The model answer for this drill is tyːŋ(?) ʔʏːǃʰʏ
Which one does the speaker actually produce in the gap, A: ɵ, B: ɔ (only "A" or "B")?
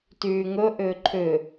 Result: A